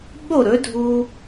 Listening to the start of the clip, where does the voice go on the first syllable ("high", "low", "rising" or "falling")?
falling